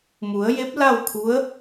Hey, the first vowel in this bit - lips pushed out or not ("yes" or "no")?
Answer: yes